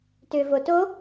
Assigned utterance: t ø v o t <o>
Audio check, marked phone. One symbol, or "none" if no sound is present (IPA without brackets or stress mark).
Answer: o